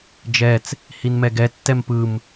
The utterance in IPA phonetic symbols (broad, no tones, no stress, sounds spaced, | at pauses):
d͡ʒ ɛ t͡s | h i n m ɛ ɡ ɛ tː ɛ m p ɯ m